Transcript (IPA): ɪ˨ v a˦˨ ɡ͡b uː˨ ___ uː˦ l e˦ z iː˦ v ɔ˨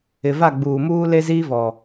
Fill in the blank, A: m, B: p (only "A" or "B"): A